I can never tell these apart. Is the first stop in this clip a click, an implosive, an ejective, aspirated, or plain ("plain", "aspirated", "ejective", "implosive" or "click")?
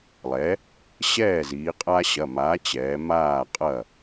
ejective